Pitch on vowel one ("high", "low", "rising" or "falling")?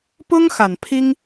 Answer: high